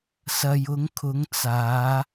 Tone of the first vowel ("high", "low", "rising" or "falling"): low